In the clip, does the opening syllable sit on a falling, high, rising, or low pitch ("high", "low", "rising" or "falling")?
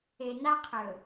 low